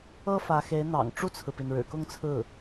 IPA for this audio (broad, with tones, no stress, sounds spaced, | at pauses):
ɤ˥ f ä˧˥ x e˧˥ ɪ̯ n̪ ɑ̰˨˩ ŋ ʈ͡ʂ u˥˩ t͡sʰ ɹ̩˩ p i˩ n ɻ ɻ̩˨˩ k ʊ˥˧ ŋ t͡sʰ ɹ̩˥˩